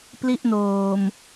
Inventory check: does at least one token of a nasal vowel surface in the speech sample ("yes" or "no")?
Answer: no